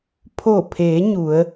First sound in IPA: pʰ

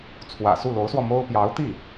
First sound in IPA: t͡sʰ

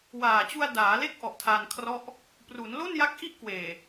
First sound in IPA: w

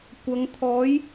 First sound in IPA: kʷ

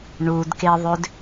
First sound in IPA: ɳ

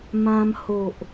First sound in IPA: m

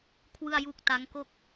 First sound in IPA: kʰ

